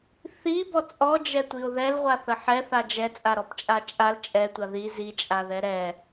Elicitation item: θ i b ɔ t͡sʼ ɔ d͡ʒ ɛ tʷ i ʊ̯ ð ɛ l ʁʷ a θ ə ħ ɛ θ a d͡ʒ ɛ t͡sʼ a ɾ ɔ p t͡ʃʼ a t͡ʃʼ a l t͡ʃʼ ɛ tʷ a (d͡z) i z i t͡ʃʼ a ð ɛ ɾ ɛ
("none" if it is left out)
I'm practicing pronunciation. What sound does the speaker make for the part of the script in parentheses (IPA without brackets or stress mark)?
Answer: ð